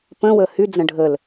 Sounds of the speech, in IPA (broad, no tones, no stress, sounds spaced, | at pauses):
p ə̃ w əː h y d͡z ə̃ ɖʱ ə l